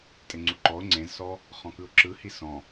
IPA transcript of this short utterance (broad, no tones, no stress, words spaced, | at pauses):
tʼeŋ͡ǀuǃɔʊ̯ ŋ͡ǀẽzsɔ | χɔ̃kɯʊ̯ǁɯ hisɔ̃